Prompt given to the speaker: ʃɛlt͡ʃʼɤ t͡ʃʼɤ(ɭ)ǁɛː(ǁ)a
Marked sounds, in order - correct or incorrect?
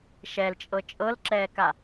incorrect: l, incorrect: k

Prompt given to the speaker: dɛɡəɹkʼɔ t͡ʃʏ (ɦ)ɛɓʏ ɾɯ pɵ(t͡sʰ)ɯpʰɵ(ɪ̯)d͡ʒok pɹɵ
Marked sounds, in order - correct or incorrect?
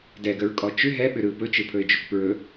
correct, incorrect: t͡ʃ, correct

